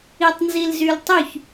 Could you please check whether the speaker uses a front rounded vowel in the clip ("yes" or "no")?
yes